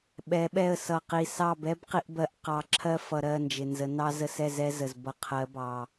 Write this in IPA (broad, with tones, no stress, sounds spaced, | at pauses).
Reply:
ɓ ɛ˨˦ ɓ ɛ˦˨ ə̯ s ʌ˨ q i˨ s ɑ˦˨ b ɛ˦ b q i˧ ʔ b ɜ˧ ʔ q ɑ˧ ǁʰ ɜ˦ f ʌ˨ ɾ ɜ˦˨ n d͡ʒ ɪ˨ n z ə˨˦ n ɑ˧ z ə˧ s ɛ˦˨ z ɛ˦ z ə˨ z b ʌ˨ qʰ ɜ˨˦ b ɑ˨